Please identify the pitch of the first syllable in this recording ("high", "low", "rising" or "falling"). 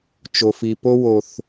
low